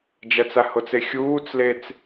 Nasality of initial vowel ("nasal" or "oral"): oral